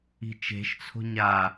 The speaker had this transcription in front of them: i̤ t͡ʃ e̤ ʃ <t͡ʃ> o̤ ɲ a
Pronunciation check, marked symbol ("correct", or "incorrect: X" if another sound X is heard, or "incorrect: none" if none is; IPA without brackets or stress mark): incorrect: t͡sʰ